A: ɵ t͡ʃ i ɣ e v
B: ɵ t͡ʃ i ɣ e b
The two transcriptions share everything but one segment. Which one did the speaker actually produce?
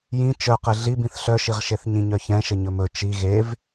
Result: A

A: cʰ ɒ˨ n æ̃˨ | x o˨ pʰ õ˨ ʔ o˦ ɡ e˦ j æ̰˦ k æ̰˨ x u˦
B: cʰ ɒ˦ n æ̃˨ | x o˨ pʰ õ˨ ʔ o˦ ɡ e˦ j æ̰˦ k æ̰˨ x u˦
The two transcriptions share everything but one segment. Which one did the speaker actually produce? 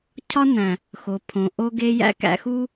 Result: B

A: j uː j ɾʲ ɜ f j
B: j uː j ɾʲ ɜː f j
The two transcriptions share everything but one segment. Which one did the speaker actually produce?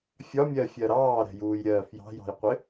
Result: B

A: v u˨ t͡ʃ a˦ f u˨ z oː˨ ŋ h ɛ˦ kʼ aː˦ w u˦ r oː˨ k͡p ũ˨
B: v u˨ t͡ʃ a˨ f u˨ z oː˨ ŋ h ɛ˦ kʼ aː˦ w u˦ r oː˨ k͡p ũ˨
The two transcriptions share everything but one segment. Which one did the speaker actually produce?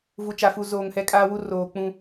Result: B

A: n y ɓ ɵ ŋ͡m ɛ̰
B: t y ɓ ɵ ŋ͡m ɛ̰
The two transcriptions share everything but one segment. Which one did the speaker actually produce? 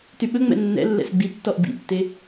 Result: B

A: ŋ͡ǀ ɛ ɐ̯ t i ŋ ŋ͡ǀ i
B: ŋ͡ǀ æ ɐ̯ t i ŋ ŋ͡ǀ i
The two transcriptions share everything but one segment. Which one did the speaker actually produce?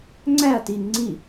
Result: B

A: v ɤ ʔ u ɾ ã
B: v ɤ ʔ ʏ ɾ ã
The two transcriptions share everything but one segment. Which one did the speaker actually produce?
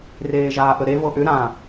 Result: B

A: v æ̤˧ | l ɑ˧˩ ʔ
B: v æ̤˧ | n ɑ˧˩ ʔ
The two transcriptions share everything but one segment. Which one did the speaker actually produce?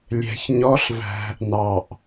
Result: B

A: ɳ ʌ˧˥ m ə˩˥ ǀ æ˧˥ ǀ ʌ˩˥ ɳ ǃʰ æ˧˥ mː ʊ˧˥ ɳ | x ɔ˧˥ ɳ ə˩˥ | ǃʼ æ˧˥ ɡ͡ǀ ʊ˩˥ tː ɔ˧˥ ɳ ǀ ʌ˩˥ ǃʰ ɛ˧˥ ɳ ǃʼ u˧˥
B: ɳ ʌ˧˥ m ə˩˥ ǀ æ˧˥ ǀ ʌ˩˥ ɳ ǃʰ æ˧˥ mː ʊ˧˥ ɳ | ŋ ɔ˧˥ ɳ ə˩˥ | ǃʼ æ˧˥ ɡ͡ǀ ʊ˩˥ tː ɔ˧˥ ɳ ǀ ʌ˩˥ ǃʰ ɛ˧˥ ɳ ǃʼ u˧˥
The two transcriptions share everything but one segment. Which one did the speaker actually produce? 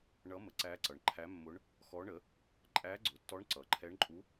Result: A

